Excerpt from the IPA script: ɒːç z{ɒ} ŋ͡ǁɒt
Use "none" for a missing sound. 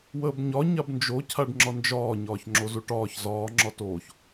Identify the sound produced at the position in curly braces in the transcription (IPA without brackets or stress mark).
ɒː